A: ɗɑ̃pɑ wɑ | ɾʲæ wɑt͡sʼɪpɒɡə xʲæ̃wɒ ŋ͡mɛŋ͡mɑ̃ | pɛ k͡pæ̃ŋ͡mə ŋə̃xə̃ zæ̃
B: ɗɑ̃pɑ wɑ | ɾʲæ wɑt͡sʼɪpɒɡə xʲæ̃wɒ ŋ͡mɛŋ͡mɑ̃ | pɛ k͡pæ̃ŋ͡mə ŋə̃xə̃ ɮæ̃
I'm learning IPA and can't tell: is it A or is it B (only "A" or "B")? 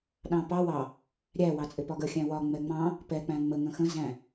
A